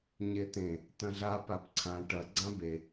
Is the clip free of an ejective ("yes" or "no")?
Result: yes